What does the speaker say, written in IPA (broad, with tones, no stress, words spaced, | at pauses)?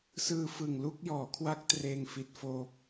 sɯː˧fɯ˨˩ŋlu˥˩k̚ jɔː˩˦kʰwa˦˥k̚ treː˧ŋfi˦˥t̚foː˦˥p̚